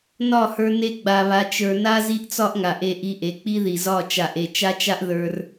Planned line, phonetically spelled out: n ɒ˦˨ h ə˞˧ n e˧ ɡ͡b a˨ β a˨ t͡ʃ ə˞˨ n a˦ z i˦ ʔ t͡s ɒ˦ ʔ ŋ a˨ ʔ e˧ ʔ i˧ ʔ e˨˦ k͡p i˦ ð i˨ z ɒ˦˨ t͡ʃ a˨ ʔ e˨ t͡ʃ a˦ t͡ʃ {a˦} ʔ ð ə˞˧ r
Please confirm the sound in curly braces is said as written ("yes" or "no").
yes